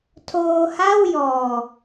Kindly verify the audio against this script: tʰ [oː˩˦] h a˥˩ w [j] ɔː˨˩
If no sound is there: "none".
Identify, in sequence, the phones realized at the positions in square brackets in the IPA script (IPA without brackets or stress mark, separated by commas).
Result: oː˧, j